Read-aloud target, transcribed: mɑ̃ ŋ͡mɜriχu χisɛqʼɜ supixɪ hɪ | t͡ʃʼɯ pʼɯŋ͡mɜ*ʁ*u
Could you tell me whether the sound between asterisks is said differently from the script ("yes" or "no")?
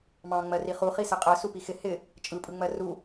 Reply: yes